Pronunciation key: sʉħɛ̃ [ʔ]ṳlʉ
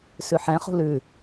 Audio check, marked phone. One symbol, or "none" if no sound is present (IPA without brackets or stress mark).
χ